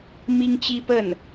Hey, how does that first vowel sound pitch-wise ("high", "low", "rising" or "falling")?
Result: high